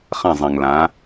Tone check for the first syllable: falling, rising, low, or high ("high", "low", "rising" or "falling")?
falling